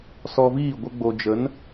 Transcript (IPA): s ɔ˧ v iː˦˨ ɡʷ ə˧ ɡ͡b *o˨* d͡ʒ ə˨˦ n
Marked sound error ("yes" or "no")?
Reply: no